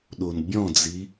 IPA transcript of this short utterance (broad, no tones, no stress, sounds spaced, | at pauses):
ɗ o n bʲ ɔ̃ d͡z i